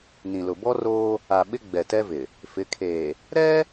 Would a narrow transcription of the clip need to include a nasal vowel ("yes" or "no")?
yes